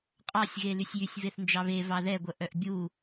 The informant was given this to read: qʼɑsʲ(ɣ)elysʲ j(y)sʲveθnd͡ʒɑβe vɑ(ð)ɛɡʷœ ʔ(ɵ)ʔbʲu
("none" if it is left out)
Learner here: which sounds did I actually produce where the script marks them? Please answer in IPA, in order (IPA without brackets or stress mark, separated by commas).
ɣ, y, ð, œ